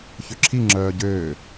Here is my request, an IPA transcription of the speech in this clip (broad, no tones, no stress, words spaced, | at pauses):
çøǁʰi ŋ͡ǁœːɟøː